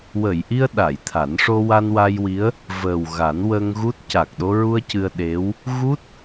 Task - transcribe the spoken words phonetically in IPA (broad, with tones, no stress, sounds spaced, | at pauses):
w ə˨˩˨ j ʔ i˧ ə̯ ɗ a˨˩˨ j t̪ʰ a˨˩˦ n ʂ o˧ w a˧ n w a˧ j w i˧˥ ə̯ | v əː˨˩ w ɣ a˨˩˦ n w ə˧ ŋ ɣ u˦˥ t̚ c a˨˩ k̚ ɗ o˧ ɹ u˧ ə̯ c ɨ˧ ə̯ ɗ e˧˥ w | ɣ u˦˥ t̚